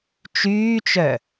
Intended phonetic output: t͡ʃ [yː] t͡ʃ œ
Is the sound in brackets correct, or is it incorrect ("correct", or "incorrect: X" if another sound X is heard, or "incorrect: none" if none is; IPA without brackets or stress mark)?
correct